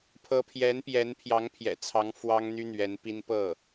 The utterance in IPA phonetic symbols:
pʰ ɤ˧˥ pʰ j ɛ˧˥ n p j ɛ˧˥ n pʰ j ɑ˧˥ ŋ pʰ j ɛ̰˨˩ t͡sʰ ɑ˧˥ ŋ f w ɑ˥ ŋ n̪ y˥ n̪ ɥ ɛ˧˥ n p i˥ n p ɤ˥˩

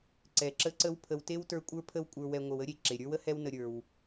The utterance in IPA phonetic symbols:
ǀ ɛ˩ ǁ ə˦ ǀ ə˦ w pʰ ə˨ w t e˥ w t ə˞˦ kʷʼ ə˞˥ pʰ ə˥ w kʷʼ ə˞˨ w ɛ˨ ŋʷ ə˨ w ə˥ ɾʲ e˩ ǁ e˩ ɾʲ ə˞˥ w ə˥ h ɛ˦ w n ə˨ ɾʲ ə˞˩ w

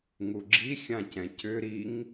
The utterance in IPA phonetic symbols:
ŋ u ɡ͡ǁ i xʲ ã c ɛ̃ c ʏ ɾ i ŋ

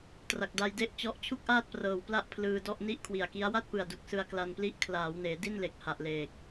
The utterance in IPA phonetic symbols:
t r a˨˩ k̚ d a˧ j d e˥˩ ʔ t͡ɕ ɔ˦˥ ʔ t͡ɕʰ u˥˩ k̚ ʔ aː˥˩ t̚ p r ɤː˨˩ w p l a˥˩ ʔ pʰ l ɯː˧ d ɔ˥˩ ʔ n i˥˩ ʔ kʰ w i˨˩ a̯ k i˦˥ a̯ w a˥˩ t̚ p ɯ˨˩ a̯ d u˨˩ k̚ s ɯ˧ a̯ k l a˧ n p l i˦˥ ʔ kʰ l aː˩˦ w n eː˩˦ d i˥˩ n l e˨˩ k̚ h a˨˩ ʔ l eː˨˩ k̚

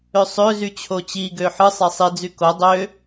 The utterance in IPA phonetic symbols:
ø sˤ ø z y t͡ɕʰ o t͡ɕ i ɡ ø ħ ɯ sˤ e sˤ i d͡z y k o dˤ ø

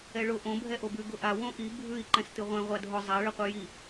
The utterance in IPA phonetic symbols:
ɛ ɭ ʊ ʔ õ bʱ ɛ ʔ o b ʉ ɡ ʊ ʔ a w õ ʔ i bʱ ʉ i̯ ǃ ɛ̃ s t ɨ ʁʷ ɛ̃ ʁʷ a dʱ ʊ zˤ a ɭ ɨ qʷ ɨ j i

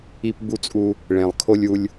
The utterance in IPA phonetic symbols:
i˧ p b u˧ t͡sʼ u˧ | ɭ ẽ˨ lˠ kʰ o˧ lʲ u˧ lʲ

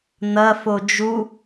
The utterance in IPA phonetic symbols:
n̪ ɐ f o d͡ʒ u

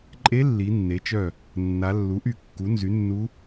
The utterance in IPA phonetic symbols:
ǃʼ e˧˥ lː i˩˧ nː e˩˧ t͡ʃ œ˧˩ | nː a˩˧ lː u˩˥ ʔ y˧˩ kː u˩˥ n z y˩˥ nː u˧˥

